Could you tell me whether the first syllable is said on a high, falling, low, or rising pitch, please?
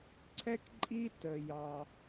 high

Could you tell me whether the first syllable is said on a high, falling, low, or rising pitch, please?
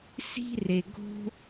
high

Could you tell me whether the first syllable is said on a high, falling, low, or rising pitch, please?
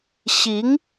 rising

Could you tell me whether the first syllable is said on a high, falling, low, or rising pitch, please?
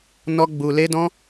high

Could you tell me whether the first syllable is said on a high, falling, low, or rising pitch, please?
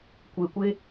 low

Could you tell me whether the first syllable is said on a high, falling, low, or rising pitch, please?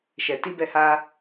low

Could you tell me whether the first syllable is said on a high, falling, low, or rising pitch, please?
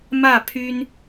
falling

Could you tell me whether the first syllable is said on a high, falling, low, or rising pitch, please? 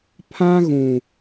high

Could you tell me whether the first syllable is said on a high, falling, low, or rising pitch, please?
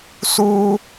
high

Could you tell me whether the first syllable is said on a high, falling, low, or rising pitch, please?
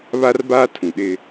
high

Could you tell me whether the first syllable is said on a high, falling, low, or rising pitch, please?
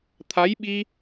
rising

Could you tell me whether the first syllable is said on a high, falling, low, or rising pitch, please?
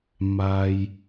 low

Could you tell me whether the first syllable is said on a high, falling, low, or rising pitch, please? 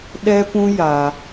high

